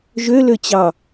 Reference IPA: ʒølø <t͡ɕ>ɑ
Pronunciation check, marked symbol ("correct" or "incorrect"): correct